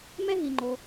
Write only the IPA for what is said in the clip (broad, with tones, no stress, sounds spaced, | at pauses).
m ɛ˥ ɦ i˩ ŋ͡ǃ o˩